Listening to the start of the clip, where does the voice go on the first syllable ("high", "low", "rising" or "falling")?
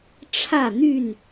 falling